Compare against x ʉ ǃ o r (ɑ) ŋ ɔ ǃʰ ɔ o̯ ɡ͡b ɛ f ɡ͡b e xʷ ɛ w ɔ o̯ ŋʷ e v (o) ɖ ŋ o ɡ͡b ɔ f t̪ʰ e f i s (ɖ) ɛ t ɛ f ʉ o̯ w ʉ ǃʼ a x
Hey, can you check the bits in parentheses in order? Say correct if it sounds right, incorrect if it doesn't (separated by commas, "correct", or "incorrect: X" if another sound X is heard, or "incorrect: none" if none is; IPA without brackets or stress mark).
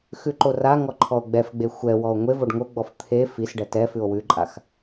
incorrect: a, correct, correct